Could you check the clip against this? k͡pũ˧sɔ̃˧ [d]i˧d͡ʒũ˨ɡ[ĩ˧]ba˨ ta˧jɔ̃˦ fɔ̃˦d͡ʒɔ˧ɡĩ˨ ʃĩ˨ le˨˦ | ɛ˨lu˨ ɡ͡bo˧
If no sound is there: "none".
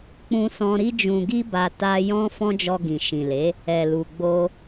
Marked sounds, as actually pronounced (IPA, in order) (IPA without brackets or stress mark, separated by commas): ɾ, i˧